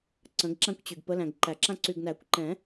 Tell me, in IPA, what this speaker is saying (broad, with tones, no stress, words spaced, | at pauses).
ǀə̃˨˦ɡǁã˦kʷt͡ɕy˨ɡ pə˨˦læ̃˨ɡǃæ˨˩˦ǁã˦ ǀy˨ɡnæ˨˩˦kʷǃɛ̃˨˩˦